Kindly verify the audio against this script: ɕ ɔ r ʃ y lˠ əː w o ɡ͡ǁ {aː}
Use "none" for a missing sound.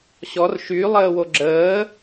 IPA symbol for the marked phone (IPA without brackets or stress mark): əː